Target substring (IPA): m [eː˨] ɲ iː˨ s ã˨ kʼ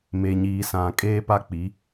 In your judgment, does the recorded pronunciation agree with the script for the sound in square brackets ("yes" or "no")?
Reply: no